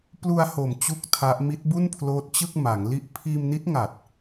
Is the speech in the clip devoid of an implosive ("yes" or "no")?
yes